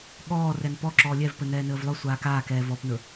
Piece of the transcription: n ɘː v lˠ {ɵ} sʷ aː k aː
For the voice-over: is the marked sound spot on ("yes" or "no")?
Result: yes